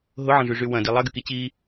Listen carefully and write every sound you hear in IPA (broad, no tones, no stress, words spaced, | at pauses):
ɦʊʕɐ̃ʐyʐy wɐ̃di lˠɐɡyki t͡ɕi